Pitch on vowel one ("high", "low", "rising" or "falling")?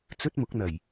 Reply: high